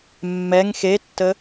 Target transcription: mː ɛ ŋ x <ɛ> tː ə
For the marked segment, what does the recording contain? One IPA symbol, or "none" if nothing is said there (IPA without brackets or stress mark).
e